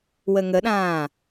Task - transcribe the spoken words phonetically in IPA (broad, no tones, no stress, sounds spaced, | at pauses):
w ə ŋ ə ɗ ãː